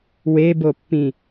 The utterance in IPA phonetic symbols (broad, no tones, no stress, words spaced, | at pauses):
webopːĩ